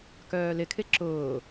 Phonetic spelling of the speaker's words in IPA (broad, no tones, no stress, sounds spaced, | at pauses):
k œː l ɪ kʰ ɪ ǁ ʊː